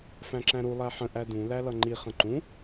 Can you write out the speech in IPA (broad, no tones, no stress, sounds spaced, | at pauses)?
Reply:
f æ̃ ǁ æ̃ ɾ u lˠ æ ħ ə̃ ʔ æ d ũ l æ l ʌ ŋ͡ǃ i χ ə̃ ǃ ũ